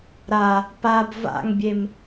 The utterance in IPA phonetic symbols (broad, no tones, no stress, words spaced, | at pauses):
ɾa | pab va̰ŋbʲem